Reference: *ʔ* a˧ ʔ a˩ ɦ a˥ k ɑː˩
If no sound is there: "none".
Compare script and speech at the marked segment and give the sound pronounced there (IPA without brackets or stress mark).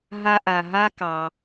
ɦ